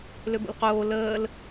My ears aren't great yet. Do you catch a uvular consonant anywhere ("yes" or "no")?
yes